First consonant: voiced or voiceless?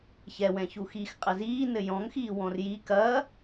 voiceless